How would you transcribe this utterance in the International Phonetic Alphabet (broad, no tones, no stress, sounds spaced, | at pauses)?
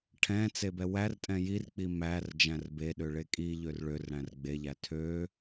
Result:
ʈʰ ɛ̃ t͡s e b ɛ w æ r tʼ ɛ̃ j i r k͡p i m æ r d͡ʒ æ̃ r b e ɗ ø ɭ e kʼ i ʎ ø r ɭ ø r ɽ æ̃ r ɡ͡b e ʎ æ tʰ ø